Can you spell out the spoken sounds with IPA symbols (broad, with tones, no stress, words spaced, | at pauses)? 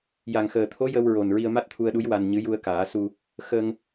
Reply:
ja˨˩ŋxəː˨˩t̪ʰo˧˥ jə˧w ɹo˨˩n ɹi˧ə̯ma˦˥t̚t̪ʰu˧ə̯ɗu˧˥j wa˧nɲɨ˧˥ ju˧ə̯kaː˨˩˦su˧ | xə˧ŋ